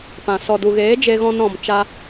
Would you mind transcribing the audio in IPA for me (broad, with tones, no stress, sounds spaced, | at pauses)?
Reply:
p ã˨ s ɔ˨ d u˨ ɣ eː˨˦ d͡ʒ e˧ ɣ ɔ̃˧ n ɾ ɔ̃˨ m t͡ʃ a˧